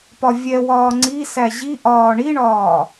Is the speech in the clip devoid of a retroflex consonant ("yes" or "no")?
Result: no